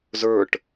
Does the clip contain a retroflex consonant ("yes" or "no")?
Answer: yes